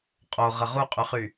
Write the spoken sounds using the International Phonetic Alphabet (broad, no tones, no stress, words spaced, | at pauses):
qʼoʁə ʁuqʼyχy